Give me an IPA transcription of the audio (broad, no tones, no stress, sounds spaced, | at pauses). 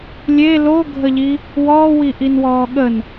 lʲ e l o ɡʱ ə ʎ i | w ɔː w i ʔ i n w ɔː ɠ ə n